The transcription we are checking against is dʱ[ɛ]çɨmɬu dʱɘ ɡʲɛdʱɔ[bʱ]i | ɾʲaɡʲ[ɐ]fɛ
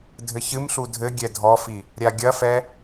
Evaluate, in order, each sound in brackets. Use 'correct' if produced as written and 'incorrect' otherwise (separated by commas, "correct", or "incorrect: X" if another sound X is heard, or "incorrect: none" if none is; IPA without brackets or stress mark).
incorrect: ɘ, incorrect: f, correct